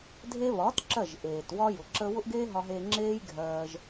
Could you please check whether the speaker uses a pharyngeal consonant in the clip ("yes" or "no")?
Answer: no